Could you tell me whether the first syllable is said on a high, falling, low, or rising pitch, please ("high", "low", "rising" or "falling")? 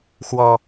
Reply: low